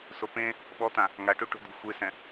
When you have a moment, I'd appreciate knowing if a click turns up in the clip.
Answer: no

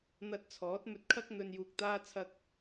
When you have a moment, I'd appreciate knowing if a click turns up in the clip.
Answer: no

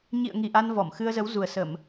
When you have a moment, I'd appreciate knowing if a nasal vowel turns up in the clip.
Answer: no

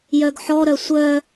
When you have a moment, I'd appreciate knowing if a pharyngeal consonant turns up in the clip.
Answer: yes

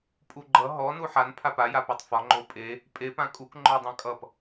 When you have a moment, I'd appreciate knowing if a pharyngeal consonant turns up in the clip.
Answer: yes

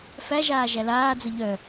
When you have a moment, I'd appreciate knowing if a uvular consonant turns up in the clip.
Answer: no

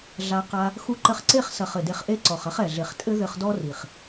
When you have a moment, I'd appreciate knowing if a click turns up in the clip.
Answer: yes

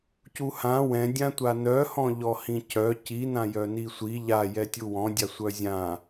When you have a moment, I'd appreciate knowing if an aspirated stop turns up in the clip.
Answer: no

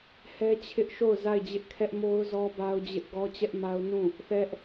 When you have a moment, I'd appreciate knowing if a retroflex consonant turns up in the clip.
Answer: no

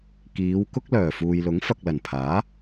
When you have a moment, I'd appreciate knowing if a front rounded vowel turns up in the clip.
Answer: yes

